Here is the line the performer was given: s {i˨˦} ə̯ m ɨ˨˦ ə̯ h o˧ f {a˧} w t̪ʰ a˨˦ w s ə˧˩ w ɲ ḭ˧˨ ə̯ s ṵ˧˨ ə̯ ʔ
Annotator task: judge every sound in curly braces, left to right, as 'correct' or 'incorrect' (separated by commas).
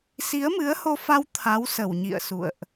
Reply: correct, correct